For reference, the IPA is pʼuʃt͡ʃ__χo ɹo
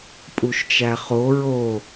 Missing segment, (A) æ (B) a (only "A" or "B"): A